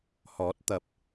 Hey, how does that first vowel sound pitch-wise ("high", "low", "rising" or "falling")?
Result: rising